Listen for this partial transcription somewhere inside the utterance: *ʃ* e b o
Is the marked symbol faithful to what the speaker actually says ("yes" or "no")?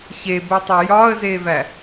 no